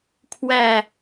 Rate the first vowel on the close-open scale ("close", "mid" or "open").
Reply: open